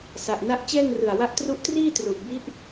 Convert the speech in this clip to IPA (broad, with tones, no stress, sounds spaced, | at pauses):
s a˨˩ ʔ n a˦˥ ʔ t͡ɕ ɛː˥˩ ŋ r ɯ˨˩ a̯ w a˦˥ ʔ t r u˦˥ ʔ t r iː˥˩ t r u˨˩ ʔ b i˦˥ ʔ